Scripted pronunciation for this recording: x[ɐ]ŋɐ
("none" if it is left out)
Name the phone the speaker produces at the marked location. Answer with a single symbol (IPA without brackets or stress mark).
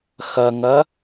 ɐ